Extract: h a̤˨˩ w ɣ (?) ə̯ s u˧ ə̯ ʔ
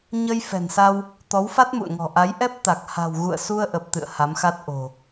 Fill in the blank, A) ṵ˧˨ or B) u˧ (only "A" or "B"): A